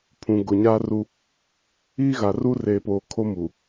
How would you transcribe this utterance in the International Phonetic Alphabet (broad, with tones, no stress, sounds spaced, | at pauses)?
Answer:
pʰ ũ˨ ɡ ʊ˨ ɲ aː˦ r u˦ | iː˦ ɣ a˨ r u˦ r eː˨ p oː˨ kʰ o˦ m u˨